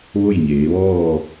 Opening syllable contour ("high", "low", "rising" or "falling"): falling